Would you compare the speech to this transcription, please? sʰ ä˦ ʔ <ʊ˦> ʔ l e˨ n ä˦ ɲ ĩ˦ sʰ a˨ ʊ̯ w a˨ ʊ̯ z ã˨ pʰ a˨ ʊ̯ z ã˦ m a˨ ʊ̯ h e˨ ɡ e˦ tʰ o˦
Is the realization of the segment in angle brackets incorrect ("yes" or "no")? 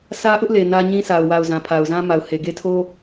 no